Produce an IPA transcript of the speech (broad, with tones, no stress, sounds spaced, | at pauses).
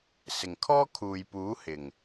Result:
s ɪ˨˩ ŋ kʰ ɔː˥ kʰ uː˨ j p uː˨˥ h ɪ˨˩ ŋ